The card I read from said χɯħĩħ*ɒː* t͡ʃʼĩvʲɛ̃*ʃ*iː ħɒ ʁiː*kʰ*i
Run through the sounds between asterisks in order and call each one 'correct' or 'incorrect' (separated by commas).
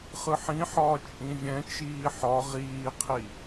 correct, incorrect, incorrect